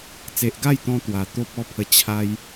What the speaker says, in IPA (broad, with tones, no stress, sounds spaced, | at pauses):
t͡s e˨ ʔ ɡ a˥˧ j t̪ ɔ̃˧ t̪ w a˨˩ t̪ o˦ p̚ ɔ˦ pʰ ə˧ t͡ɕʰ a˧ j